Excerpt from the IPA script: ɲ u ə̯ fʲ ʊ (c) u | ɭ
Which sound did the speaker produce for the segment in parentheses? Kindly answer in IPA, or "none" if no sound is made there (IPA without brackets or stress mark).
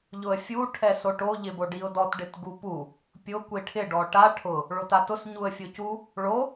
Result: c